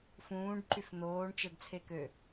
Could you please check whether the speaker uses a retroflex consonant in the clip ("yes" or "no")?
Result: yes